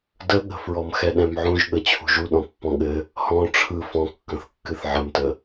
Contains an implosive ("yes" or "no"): yes